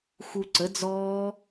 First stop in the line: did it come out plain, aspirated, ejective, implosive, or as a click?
click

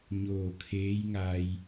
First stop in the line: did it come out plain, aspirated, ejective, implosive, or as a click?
aspirated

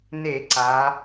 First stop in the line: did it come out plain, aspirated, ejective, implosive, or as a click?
click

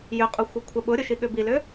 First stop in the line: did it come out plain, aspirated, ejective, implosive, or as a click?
ejective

